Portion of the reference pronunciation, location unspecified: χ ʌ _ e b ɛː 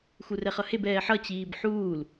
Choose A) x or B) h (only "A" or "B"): B